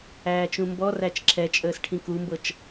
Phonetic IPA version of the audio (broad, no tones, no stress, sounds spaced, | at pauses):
æː t͡ʃ ũ m b ɔ r æ t͡ʃ ǁʰ ɛ t͡ʃʼ əː s ʈʰ ĩ k u m b ɤ t͡ʃ